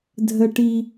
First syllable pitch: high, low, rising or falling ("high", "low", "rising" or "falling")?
high